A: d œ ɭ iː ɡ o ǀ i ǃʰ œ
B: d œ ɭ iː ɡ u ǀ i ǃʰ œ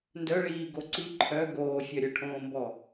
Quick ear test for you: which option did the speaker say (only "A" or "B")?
A